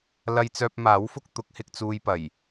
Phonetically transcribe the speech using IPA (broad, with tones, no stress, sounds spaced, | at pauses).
l ɐ˧ j t͡s œː˧ p̚ m aː˨˥ w f ʊ˥ k̚ t̪ ʊ˨˥ k̚ h ɪ˧ k̚ t͡s uː˧ j p ɐ˨˩ j